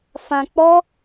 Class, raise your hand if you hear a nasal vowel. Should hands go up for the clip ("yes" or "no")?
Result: yes